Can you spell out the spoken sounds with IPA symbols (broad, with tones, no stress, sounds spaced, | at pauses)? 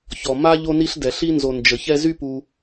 ç ɔ˧ m a˥ ʎ o˥ n i˥ ɬ d ɛ˧ ɬ i˥ n z o˧ n d͡ʒ ə˧ ç ɛ˥ z y˥ p u˧